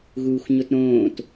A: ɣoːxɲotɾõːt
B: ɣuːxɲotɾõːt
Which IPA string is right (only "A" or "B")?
B